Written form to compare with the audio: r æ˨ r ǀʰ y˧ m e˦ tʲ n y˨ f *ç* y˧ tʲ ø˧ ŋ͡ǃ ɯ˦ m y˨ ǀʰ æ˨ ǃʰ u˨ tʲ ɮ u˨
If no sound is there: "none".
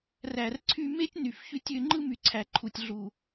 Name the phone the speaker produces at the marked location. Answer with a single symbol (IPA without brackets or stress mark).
ç